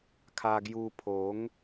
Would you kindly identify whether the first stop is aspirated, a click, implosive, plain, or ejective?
aspirated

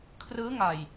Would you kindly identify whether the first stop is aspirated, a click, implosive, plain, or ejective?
aspirated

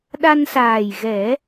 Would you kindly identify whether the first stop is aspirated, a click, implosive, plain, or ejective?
implosive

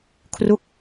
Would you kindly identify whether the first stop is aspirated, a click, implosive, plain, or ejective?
aspirated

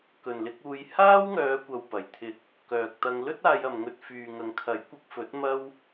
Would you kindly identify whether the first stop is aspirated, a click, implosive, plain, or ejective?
plain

